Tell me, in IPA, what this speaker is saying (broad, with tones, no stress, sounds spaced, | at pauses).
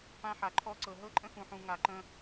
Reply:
p ã˦ ħ a˨ ǃʰ ɔ˦ ǀ ɤ˨ ɦ ɤ˦ ǃʼ ə̃˦ x ũ˨ ħ ũ˨ ŋ a˨ ǃ ə̃˦